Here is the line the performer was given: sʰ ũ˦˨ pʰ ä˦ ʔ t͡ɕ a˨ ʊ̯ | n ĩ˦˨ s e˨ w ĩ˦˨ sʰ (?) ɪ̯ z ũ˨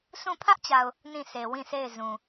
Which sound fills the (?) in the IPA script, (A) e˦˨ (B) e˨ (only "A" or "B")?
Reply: A